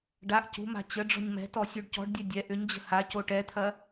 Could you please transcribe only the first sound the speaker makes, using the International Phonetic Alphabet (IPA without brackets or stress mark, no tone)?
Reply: ɖ